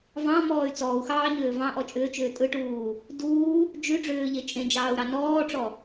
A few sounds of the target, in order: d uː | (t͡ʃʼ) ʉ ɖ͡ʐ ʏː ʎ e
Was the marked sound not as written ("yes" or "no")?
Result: yes